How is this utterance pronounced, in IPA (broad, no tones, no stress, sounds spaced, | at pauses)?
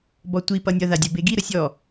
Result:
b ɔ tʷ i p ʌ nʲ ʌ ð a dʲ ʌ b e ɡ i ɾ ə sʲ ɔ